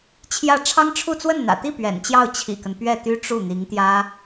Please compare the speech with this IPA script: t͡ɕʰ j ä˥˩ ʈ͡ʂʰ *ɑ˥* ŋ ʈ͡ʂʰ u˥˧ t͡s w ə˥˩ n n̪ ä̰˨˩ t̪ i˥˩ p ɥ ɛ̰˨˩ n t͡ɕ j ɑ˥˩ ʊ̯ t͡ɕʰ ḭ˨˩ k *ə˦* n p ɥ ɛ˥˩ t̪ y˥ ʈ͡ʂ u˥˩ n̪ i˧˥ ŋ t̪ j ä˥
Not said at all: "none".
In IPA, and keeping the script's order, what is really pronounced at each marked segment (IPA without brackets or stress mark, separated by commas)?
ɑ˥, ə˦